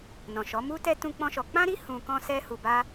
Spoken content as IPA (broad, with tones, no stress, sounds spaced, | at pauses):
n ɔ̃˨ ʃ ɔ˨˦ m u˦ t ɛ˦ t ũ˦ k͡p ɔ̃˦ ʃ ɔ˧ k͡p ã˦ ɾ i˦ h ũ˧ k ɔ̃˦ s ɛ˧ h u˨ b a˧